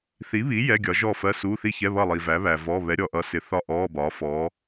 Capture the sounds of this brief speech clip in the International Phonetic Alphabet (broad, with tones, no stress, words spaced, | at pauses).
θi˨˥βi˨˥ jɛ˧˥˧ɡʲɒ˨˥ ʒɔ˥˨fɜ˧˥˧su˧˥˧ θi˥˨çɛ˧˥˧ βʌ˥˨lˠi˨væ˨˥ βæ˨vɔ˧˥˧ βɛ˨˥ɾʲɔ˨ʔʌ˨˥sɪ˨ θɒ˥˨ʔɔː˧˥˧ bɒː˨˥fɔː˨˥